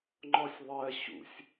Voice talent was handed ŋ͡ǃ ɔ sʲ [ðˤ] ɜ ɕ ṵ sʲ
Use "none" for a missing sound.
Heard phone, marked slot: ðˤ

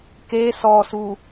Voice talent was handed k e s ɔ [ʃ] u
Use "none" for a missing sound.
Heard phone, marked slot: s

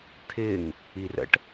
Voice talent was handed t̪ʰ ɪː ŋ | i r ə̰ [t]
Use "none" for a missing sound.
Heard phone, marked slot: ʈ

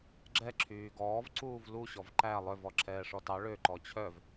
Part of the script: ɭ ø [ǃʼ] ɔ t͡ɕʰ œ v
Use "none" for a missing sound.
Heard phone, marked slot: ǃ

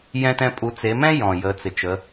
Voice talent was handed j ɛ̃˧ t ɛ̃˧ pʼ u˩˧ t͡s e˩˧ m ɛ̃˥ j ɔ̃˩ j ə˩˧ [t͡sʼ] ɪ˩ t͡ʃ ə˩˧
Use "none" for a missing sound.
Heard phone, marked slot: t͡s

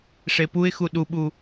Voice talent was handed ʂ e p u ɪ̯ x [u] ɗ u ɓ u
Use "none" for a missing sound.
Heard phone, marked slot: u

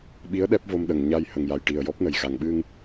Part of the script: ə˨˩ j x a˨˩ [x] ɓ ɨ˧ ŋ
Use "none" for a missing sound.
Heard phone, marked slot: ŋ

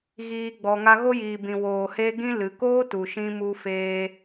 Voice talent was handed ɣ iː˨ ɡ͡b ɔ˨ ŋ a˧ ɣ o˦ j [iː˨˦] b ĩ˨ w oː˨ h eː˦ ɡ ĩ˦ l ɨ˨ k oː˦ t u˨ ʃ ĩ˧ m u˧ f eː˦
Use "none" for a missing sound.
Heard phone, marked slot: iː˨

